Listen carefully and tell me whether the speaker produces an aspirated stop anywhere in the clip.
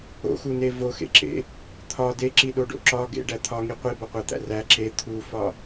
yes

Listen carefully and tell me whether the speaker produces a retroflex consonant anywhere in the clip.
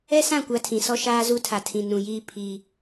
no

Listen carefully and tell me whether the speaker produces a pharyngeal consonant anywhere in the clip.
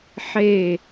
yes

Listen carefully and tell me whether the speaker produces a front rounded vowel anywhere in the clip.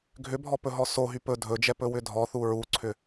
yes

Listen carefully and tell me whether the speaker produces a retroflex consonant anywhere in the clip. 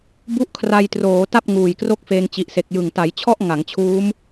no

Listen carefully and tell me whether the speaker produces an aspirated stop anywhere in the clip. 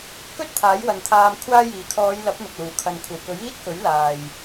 yes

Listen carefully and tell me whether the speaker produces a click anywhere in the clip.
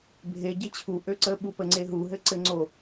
yes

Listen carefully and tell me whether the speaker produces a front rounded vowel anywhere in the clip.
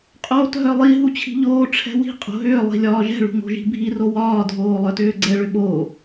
yes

